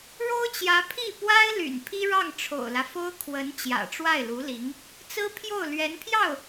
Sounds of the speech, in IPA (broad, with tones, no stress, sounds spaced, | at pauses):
ɻ o˥ ʊ̯ t͡ɕ j ä˧˥ pʰ i˥˩ p w a˥ ɪ̯ l y̰˨˩ n pʰ i˥ ɻ ɑ˥˩ ŋ ʈ͡ʂʰ o̰˨˩ ʊ̯ l ä˦ f o˥ ʊ̯ kʰ w ə˧˥ n t͡ɕ j ä̰˨˩ ʈ͡ʂ w a˥˩ ɪ̯ l u˧˥ l i˧˥ ŋ | t͡s ɹ̩˥ pʰ j o˥˩ ʊ̯ l ɥ ɛ˧˥ n pʰ j ɑ˥˩ ʊ̯